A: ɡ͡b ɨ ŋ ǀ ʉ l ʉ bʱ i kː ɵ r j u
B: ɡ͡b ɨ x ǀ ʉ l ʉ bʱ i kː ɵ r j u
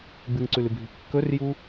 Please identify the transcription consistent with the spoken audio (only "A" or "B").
A